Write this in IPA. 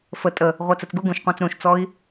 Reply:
fə tʼə | ʁʷɜt͡sət͡sɡu ɡũʃqʷɑ̃t͡s ɾũʃt͡sɔi̯

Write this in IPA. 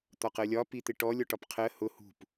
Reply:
t̪ɒqɜlʲɒ pit̪ɪʈɔ lʲɔʈɒpqʰɜ hʊ hṳp

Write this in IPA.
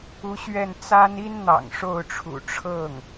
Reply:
u˧˥ɕɥɛ˥˩n t͡sa˥n i˥n n̪ɑ̰˨˩ŋʂo˥˩ʊ̯ʈ͡ʂʰṵ˨˩ ʈ͡ʂʰɤ˥˩ŋ

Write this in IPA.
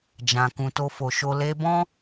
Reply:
d͡ʒã˨kũ˨ to˧fo˨ʃo˧ le˧bɔ̃˦

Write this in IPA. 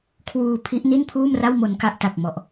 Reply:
kʰwuː˧pʰi˦˥ʔ ni˥˩npʰuː˥˩mra˥˩w mo˧nka˥˩ʔta˨˩k̚ mɔ˨˩ʔ

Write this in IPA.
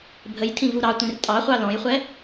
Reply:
bʱəj tʰĩvuɾɑtʷĩr tʼɑχʷɑ lɔ̃jχʷɛ

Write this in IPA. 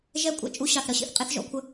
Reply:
ʒɛ˦kʷʼɛ̰˦ t͡ʃʼu˧ɕɑ˨θɾʌ˦ɕḭ˨θ qʼe˦θʒɔ̰˧kʷʰə˦

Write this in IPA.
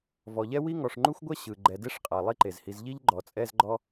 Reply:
vɔ˨ʎɛ˥wi˥ ŋɔ˨ʂŋ͡ǃu˥xʷɡʷɛ˥ ɕɯ˨ ɡ͡ǃɛ˨de˥ʂqʼa˩ lˠi˦ǃe˩zhi˨z ʎi˥ʎɡ͡ǃɔ˩t͡sʼɛ˦z ɡ͡ǃɔ˥

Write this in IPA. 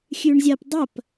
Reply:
xʲʉɳzʲɐp dˤɐp

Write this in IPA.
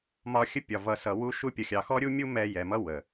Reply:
mɒ˧xʲə˦pʲɒ˨ vʌ˨sʌ˨ wu˧ʃu˧pʲʌ˨ xʲɑ˨xɔ˦ɾʲu˦mʲu˦ mɛ˧ jɛ˨mʌ˦ wə˨

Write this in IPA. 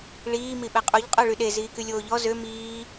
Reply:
ɭiː miɓɛqʼuʎ qʼœɭyɗe ziːkylʲoːʎɔ zø miː

